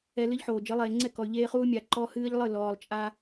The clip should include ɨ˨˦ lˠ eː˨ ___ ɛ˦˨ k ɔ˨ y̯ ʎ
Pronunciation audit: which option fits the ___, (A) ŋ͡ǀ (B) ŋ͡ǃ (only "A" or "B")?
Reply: A